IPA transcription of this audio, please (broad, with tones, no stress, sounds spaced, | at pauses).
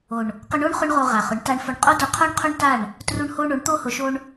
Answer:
o˨ ɳ | q ʊ˧ ɳ o˦ ɳ χ ʊ˦ ɳ ʁ o˧ ʁ a˨ χ ʊ˨˦ ɳ t a˧ ɳ f ʊ˧ ɳ qʼ o˦ d ʊ˧ qʰ o˦ ɳ qʰ o˦ ɳ t a˦˨ ɳ | t r u˧ ɳ h o˧ ɳ o˨˦ ɳ t̪ o˧ h ʊ˨ ʃ o˧ ɳ